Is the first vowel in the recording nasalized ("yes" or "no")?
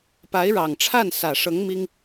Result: no